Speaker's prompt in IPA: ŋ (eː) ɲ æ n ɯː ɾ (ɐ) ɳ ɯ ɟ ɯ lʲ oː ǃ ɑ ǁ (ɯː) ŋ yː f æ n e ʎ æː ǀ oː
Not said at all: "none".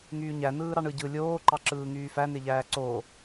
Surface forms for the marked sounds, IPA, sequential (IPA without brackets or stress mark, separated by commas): yː, ɑ, ɯː